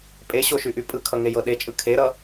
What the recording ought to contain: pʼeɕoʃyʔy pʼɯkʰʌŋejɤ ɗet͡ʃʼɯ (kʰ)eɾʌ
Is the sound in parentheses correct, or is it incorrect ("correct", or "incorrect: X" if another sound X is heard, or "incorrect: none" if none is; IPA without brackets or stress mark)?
correct